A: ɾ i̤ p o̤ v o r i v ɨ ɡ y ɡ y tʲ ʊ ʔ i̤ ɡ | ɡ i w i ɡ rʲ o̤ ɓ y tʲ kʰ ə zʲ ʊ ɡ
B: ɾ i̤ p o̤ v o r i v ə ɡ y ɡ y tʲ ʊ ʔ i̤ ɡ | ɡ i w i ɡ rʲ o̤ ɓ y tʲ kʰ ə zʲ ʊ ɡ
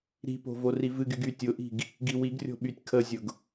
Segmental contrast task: A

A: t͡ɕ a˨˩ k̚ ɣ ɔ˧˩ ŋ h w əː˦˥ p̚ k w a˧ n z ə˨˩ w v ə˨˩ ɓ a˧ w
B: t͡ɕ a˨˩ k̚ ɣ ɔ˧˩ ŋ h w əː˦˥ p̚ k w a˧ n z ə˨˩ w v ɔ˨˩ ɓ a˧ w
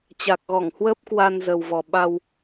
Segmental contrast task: B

